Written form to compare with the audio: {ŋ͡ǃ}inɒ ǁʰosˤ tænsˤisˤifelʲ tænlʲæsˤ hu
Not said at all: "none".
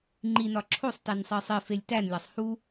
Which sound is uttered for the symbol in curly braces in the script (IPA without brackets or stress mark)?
ŋ͡ǃ